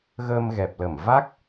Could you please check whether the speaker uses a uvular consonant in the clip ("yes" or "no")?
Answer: no